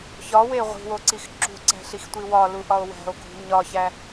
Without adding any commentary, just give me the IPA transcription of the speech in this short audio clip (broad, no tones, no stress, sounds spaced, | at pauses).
ç ɒ w e ʁʷ i̤ w o ǀ i x ǁ ṳ ǀ æ̤ ɬ i x tʷ i w ɒ l u ʔ ɒ o̯ w æ̤ o̯ ɡʱ ṳ ɲ ɒ ç æ